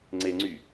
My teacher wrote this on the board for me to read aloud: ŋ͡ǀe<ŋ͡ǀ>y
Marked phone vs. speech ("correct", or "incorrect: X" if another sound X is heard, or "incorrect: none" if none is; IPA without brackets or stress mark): correct